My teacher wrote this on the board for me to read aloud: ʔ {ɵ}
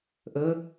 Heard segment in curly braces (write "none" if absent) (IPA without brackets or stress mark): ɵ